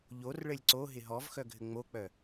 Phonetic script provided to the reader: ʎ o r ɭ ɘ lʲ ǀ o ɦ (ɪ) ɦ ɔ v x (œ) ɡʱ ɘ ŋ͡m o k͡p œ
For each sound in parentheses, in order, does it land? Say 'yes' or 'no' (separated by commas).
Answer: yes, yes